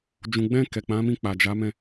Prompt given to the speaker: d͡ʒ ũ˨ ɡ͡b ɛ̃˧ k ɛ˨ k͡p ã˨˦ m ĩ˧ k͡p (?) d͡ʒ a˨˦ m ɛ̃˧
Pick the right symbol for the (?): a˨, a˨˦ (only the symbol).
a˨